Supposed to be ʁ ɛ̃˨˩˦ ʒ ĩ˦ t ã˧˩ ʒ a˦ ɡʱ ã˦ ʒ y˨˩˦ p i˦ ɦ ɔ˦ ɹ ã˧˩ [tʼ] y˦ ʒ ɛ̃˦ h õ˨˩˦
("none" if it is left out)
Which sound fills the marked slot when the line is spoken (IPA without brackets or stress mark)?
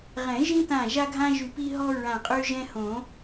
qʼ